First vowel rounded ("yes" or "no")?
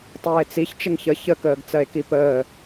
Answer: no